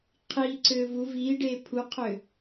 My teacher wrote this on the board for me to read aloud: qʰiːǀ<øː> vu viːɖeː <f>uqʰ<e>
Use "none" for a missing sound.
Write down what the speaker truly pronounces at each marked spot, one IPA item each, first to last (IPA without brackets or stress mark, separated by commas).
øː, pʰ, ø